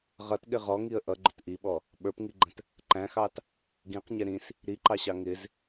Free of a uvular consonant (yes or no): no